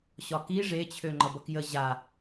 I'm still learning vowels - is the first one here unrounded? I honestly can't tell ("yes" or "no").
no